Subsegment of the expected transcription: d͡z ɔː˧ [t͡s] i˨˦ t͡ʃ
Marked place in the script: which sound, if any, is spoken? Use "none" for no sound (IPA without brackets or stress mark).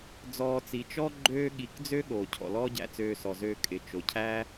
t͡s